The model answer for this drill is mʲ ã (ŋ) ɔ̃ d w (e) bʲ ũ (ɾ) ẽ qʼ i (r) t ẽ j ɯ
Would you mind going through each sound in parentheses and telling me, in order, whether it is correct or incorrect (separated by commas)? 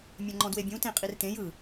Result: incorrect, correct, incorrect, correct